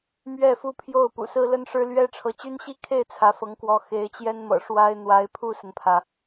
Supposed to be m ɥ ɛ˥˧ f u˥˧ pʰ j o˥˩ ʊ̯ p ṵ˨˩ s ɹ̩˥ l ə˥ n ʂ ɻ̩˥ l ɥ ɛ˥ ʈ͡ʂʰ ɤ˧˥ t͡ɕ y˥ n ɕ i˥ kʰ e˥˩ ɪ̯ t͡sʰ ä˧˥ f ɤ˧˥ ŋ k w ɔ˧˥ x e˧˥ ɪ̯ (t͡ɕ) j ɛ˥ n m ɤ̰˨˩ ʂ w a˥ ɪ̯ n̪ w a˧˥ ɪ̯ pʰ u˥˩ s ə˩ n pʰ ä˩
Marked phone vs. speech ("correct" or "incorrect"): correct